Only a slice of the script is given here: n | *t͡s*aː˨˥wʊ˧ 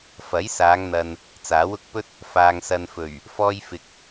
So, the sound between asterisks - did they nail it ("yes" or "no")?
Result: yes